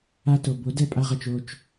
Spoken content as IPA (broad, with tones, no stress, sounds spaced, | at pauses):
a˦ t o˨ b o˨˥ d ɛ˦˨ pʼ a˦ ʁ ɤ˨ t͡ʃ o˦˨ t͡ʃ